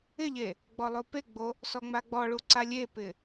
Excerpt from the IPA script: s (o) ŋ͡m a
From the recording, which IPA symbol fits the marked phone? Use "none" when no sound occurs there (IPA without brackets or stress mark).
ɔ